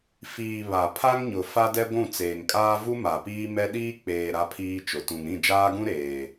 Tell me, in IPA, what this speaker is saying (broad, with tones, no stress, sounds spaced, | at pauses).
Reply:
f iː˨ β a˨ pʰ a˦ ŋ ɲ ʊ˨ f a˦ d ɛ˦ ɡʷ ũ˦˨ t͡s eː˨ ŋ kʼ aː˦ v u˦ m a˨ p iː˦ m ɛ˦ ɗ iː˦ k͡p eː˨ ɾ a˦ pʰ iː˦ t͡ʃ ʊ˨ t ũ˨ ŋ ɾ ĩ˦˨ d͡ʒ aː˦ ɡ ũ˦ ɾ eː˨